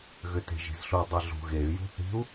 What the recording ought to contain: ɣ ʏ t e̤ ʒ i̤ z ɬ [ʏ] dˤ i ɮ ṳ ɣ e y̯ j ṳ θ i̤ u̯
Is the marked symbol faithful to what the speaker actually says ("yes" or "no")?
no